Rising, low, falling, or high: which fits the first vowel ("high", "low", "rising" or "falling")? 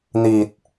low